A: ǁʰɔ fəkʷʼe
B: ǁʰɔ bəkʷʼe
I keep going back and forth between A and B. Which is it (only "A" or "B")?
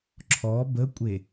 B